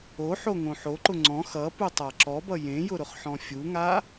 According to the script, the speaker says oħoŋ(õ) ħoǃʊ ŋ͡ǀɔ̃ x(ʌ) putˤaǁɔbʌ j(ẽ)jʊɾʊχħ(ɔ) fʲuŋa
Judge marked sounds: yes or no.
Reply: yes, yes, yes, no

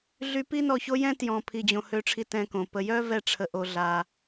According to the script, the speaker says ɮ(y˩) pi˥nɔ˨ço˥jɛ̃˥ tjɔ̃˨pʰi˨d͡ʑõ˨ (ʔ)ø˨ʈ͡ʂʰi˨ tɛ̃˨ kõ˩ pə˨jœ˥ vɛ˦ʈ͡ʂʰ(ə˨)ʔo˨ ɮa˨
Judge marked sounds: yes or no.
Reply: no, no, yes

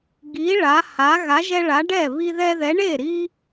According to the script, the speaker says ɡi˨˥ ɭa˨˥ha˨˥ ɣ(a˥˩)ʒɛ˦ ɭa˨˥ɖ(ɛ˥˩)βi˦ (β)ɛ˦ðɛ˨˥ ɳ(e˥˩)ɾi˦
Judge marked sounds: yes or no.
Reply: no, yes, no, yes

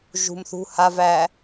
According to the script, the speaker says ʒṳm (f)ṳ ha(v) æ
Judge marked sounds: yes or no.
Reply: no, yes

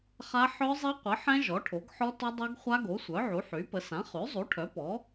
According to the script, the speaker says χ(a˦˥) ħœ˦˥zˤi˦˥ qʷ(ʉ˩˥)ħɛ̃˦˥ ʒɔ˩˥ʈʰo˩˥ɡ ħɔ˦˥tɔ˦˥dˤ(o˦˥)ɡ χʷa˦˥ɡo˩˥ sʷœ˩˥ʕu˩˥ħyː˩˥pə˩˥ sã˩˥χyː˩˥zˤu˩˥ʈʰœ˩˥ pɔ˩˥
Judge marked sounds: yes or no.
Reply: yes, no, yes

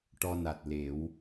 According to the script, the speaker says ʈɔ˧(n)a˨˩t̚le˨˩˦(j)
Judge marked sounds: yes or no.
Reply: yes, no

